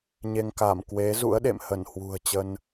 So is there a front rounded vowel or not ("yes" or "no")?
no